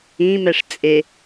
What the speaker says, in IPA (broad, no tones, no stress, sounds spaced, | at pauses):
ĩ m ɛ ʂ t͡sʼ e